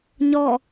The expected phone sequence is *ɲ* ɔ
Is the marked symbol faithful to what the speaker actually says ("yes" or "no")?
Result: yes